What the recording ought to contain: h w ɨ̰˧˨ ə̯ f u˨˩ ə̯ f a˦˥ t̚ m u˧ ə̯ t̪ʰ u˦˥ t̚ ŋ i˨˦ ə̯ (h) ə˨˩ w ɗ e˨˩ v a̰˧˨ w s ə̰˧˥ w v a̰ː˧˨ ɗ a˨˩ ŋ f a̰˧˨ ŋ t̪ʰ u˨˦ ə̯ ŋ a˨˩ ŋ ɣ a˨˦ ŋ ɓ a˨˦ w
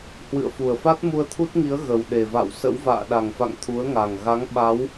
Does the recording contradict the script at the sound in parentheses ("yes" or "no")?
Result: yes